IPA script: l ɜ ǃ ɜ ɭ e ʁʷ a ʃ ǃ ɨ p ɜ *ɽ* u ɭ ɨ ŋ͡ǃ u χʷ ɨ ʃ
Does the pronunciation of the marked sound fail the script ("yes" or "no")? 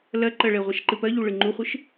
yes